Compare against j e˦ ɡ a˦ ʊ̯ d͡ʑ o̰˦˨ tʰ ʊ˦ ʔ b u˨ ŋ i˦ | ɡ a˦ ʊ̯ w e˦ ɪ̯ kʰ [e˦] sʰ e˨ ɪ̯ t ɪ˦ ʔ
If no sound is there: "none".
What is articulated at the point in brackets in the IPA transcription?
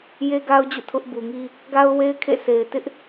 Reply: ḛ˦˨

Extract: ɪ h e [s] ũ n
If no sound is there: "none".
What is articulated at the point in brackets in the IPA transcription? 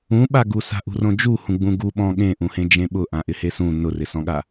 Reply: s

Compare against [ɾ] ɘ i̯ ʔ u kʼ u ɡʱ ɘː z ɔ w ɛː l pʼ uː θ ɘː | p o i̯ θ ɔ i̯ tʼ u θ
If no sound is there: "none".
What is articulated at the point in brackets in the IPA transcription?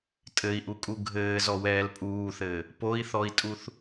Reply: tʼ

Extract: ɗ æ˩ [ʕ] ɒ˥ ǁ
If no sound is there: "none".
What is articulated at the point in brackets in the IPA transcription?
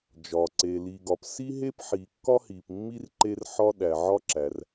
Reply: ʕ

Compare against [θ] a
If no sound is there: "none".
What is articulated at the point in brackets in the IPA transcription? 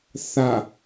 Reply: θ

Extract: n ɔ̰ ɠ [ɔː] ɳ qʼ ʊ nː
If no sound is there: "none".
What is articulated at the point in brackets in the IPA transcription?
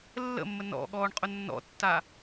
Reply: ɔː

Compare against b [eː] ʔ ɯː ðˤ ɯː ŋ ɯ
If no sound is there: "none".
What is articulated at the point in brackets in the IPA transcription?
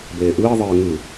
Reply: eː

